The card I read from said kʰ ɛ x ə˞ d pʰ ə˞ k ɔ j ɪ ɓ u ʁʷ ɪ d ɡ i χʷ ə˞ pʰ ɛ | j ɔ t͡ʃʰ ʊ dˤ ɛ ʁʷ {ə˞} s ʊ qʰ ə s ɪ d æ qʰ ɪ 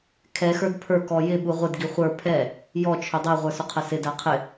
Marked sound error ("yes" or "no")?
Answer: no